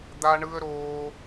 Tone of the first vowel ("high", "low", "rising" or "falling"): high